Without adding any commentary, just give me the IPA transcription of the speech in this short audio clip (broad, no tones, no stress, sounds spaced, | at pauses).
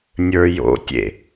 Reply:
nʲ ə˞ j o̰ tʲ ḛ